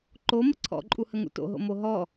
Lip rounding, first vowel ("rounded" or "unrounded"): rounded